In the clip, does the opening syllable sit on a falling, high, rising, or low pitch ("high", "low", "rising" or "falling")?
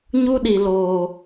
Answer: high